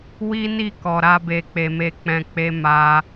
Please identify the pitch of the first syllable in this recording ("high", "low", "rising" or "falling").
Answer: high